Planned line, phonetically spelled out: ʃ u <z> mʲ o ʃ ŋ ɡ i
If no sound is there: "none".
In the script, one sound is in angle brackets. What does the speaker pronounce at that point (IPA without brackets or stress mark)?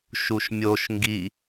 ʃ